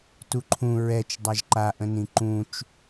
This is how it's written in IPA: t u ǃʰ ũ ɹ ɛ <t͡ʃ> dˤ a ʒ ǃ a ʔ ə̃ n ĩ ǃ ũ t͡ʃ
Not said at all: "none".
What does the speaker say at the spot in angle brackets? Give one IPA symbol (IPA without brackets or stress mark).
t͡ʃ